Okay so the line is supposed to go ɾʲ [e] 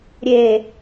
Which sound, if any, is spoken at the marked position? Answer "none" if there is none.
e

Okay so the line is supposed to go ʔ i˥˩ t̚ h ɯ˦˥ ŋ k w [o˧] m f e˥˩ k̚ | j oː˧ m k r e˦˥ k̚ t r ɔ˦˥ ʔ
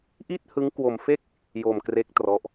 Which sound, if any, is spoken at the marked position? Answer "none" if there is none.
o˧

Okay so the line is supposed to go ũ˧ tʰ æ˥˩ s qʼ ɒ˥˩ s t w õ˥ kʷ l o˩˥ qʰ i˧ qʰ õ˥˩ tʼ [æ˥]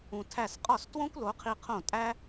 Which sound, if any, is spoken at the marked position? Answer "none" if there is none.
æ˥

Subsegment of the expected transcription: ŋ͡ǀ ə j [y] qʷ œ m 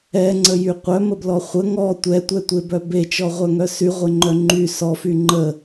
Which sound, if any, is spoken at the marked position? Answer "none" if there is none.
y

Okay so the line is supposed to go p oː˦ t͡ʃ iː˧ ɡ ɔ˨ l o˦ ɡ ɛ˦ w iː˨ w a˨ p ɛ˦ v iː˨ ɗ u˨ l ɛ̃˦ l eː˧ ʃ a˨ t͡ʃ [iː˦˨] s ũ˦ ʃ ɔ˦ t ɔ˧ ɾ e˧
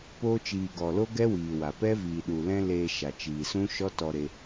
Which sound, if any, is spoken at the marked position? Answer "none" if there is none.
iː˨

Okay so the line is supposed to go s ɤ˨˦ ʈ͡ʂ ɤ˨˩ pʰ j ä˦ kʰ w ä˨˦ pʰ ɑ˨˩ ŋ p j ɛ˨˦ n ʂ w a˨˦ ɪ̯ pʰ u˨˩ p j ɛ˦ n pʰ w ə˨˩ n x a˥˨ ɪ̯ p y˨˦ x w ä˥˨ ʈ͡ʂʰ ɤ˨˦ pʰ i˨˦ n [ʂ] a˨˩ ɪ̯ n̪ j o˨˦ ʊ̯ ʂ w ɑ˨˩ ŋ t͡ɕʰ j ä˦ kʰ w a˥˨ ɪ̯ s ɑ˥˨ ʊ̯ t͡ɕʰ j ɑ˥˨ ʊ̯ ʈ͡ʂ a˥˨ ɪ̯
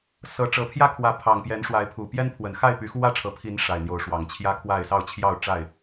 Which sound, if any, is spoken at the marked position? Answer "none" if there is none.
ʂ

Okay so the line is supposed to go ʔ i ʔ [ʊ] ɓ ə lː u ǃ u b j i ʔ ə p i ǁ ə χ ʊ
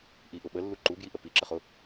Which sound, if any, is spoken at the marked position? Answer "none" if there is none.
ʊ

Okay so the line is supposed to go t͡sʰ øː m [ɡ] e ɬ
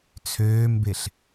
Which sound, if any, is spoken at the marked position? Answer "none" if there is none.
b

